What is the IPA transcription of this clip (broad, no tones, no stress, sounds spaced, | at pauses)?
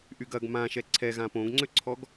ʔ y ɡ ɐ ɡ m ã ʃ ɛ ǀʰ ɛ ɣ ã p õ ɡ ŋ͡ǀ ø ǀʰ ɔ ɡ